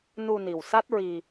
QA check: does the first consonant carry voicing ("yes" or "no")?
yes